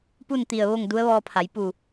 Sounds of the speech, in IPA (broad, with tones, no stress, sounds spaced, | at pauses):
p u˥˨ n t̪ i˧˩ ə̯ ʋ o˥˨ ŋ d u˧˥ ə̯ ʋ ɔː˧ pʰ a˩˧ j p u˧˩